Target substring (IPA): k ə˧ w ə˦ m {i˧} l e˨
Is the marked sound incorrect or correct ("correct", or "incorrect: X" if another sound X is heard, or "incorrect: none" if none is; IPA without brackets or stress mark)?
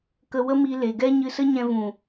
correct